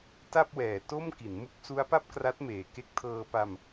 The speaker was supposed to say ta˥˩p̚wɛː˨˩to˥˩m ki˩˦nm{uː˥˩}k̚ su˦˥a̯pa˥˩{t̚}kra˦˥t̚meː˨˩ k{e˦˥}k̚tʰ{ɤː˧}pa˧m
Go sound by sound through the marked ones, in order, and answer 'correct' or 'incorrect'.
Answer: incorrect: u˥˩, incorrect: p̚, correct, correct

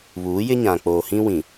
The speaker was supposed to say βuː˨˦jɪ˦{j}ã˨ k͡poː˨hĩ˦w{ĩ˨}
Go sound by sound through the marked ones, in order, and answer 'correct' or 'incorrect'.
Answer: incorrect: ɲ, correct

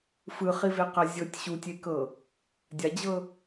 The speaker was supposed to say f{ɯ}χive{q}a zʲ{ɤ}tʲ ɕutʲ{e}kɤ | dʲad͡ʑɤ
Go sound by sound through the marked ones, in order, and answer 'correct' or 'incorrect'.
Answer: correct, correct, correct, correct

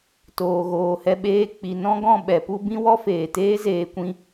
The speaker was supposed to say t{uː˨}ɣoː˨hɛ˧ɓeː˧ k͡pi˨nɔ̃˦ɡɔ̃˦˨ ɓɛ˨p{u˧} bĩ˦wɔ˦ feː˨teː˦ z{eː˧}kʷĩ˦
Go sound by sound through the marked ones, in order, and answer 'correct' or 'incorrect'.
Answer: incorrect: oː˨, correct, correct

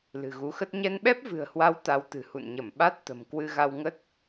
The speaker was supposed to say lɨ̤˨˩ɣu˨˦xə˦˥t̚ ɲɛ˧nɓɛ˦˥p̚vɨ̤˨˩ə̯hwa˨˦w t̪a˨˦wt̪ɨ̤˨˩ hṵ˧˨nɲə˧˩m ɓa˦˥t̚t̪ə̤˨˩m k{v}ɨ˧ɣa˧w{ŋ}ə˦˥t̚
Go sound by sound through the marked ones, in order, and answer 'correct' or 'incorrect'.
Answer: incorrect: w, correct

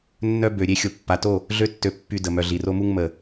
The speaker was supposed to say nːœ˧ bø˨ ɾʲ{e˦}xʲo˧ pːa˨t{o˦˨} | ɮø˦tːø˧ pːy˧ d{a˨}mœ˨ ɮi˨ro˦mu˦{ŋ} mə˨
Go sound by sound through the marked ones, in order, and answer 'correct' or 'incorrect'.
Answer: correct, correct, incorrect: ə˨, correct

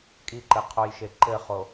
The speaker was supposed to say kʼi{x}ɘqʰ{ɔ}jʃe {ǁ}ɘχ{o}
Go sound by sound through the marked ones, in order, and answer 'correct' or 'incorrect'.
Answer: incorrect: ǃ, incorrect: o, incorrect: ǃ, correct

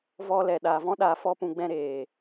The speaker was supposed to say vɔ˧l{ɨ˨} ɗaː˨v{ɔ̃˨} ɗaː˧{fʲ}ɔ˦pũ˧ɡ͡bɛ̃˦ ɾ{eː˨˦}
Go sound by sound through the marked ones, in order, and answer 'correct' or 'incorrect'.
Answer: incorrect: ɛ˨, incorrect: ɔ̃˦, incorrect: f, incorrect: eː˨

